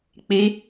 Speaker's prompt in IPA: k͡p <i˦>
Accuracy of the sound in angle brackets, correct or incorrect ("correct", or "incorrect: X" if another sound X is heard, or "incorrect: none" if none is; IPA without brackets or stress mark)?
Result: correct